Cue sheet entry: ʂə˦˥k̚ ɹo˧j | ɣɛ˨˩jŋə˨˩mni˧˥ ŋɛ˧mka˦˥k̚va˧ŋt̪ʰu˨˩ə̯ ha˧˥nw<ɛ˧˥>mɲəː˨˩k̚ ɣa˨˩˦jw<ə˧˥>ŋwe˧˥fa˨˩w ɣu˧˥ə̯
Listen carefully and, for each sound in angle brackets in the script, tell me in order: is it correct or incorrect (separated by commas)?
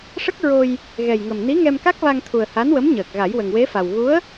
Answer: incorrect, incorrect